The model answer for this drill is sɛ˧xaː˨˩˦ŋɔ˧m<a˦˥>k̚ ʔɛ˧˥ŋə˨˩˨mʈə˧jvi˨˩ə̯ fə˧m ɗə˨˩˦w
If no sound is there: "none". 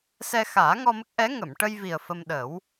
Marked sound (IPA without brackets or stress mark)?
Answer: ə˦˥